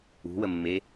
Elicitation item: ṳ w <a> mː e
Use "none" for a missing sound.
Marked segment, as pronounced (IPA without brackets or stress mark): ə